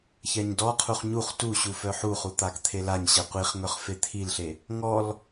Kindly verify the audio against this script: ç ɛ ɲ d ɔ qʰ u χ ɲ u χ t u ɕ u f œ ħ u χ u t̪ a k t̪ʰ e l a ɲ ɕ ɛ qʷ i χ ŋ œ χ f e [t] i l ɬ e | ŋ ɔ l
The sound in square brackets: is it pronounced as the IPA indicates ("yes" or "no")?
no